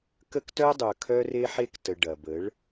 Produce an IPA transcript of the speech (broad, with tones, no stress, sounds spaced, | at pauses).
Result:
k ə˦ k t œ˦ dˤ œ˨ kʰ œ˦ r e˦ ħ e˦ k t ə˨ ɖ ɐ˨ b ə˨˦ ɭ